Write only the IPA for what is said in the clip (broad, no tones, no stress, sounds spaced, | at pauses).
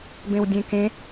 b ẽ w dʲ ẽ k ẽ